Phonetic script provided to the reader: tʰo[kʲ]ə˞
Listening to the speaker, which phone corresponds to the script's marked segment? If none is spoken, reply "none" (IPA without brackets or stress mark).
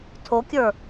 kʲ